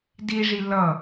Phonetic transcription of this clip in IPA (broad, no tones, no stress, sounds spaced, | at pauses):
d i ʐ i l ʌ